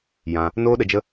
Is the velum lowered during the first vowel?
yes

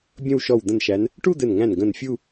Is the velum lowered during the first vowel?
yes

